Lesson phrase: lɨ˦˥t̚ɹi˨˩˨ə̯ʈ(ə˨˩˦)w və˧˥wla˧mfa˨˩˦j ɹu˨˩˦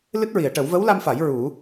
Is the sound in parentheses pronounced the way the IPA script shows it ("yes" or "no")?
yes